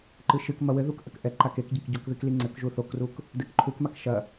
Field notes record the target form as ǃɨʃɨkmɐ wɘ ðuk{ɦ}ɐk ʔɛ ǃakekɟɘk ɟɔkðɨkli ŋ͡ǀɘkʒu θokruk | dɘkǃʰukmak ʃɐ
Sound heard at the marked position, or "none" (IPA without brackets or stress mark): ʔ